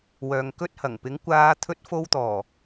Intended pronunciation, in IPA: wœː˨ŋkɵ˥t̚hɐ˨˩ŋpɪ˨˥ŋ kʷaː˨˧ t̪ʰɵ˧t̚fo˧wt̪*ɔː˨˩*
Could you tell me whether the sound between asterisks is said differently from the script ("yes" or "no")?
no